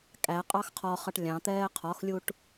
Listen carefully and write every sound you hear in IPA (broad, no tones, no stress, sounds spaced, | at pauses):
kʼ æ qʼ ɑ x qʰ ɒ χ ʌ ʈ lʲ ɑ̃ t̪ ɛː qʰ ɒ x lʲ u ʈ